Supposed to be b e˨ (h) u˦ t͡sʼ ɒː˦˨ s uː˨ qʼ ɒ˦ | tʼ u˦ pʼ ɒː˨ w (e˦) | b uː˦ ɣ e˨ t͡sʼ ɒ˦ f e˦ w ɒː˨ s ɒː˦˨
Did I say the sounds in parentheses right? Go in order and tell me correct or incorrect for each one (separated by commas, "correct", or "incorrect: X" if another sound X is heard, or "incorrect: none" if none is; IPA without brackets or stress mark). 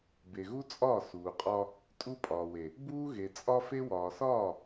incorrect: ɣ, incorrect: e˨